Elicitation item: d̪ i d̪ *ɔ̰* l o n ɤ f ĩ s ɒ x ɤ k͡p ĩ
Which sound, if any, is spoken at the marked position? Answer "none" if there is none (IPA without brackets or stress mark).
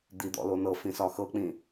ɔ̰